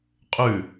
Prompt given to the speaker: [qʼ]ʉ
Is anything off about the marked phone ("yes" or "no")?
no